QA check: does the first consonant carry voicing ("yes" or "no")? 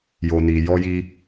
yes